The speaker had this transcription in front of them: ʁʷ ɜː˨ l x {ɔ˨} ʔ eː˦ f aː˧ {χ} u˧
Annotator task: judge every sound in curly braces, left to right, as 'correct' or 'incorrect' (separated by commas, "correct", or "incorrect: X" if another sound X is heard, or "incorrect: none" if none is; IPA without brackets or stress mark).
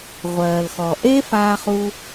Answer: correct, correct